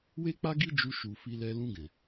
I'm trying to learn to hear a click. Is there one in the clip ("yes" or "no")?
no